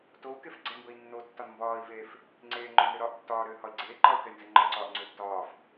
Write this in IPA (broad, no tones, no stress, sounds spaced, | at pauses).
t o u̯ k e f ɡ͡ǀ ɛ m b ə i̯ nː o tː ɒ n m b ɒː i̯ v eː f | ŋ͡ǀ eː ŋ͡ǃ ʏː n ɾ ʏ ɾ ɒː ʔ tː ɒː ɾ ʏː h ɒ i̯ ɡ͡ǀ eː ǃ ɒ u̯ k ɛ j n z ɛ ŋ͡ǃ ɒ ǀ ɒː ʔ ŋ͡ǀ ʏː tː ɒː f